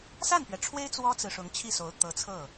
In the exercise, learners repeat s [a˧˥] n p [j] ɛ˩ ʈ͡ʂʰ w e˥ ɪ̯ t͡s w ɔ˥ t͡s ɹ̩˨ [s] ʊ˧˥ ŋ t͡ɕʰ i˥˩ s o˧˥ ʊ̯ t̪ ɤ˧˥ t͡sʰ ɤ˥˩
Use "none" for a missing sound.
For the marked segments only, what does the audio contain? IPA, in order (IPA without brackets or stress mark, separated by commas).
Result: a˥˩, ɥ, ʂ